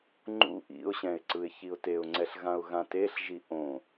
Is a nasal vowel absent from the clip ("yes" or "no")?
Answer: no